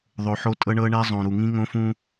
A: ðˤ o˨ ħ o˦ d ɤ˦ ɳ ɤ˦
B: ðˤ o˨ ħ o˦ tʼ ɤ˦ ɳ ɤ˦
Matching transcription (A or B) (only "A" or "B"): B